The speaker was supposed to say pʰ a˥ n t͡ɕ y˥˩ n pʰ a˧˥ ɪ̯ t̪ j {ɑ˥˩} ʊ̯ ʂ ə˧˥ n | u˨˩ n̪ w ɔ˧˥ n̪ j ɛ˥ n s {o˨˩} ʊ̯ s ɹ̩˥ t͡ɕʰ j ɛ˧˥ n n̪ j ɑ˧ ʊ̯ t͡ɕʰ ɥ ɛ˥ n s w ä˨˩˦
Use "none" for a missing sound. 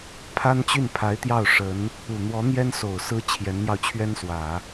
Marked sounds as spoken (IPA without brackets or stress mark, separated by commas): ɑ˥˩, o˨˩